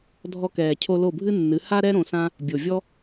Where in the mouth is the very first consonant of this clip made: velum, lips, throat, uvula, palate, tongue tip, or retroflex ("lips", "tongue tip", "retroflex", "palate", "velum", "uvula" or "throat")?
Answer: tongue tip